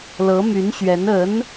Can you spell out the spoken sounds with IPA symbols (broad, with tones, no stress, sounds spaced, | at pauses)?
l ɤ˧˥ m y˧˥ n ɕ ɥ ɛ˧˥ n ə˧˥ n